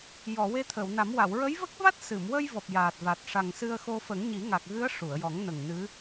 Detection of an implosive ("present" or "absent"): absent